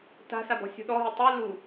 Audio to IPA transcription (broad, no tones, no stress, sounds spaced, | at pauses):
t a̤ s a b ɔ̤ sʲ ṳ ɗ ɔ ɦ i tˤ ɯ l u